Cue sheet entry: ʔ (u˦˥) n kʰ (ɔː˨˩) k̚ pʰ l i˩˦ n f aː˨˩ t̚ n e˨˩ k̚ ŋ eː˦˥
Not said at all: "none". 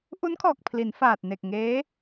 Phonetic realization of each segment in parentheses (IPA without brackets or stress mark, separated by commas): u˦˥, ɔː˨˩